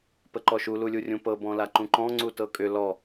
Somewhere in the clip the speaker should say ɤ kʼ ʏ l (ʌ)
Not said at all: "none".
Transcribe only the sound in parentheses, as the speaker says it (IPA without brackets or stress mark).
ɔ